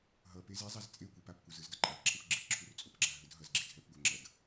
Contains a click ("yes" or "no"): yes